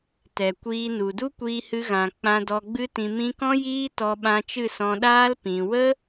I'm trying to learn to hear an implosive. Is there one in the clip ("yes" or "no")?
yes